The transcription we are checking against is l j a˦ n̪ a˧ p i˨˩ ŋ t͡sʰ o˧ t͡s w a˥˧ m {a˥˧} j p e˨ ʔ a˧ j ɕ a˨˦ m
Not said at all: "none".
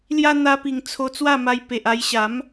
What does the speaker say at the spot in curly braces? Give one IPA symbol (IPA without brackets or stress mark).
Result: a˧